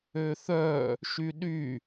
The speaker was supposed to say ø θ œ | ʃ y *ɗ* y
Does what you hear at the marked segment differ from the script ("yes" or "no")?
no